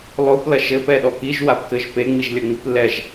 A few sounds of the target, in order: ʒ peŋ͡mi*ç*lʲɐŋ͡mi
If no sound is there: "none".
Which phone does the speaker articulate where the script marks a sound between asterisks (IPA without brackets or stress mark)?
ʒ